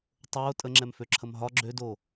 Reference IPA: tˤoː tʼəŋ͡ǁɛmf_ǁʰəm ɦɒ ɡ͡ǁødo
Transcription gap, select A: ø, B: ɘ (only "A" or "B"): A